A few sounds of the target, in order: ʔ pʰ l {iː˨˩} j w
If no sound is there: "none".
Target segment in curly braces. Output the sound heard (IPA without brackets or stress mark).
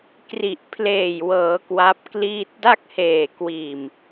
eː˨˩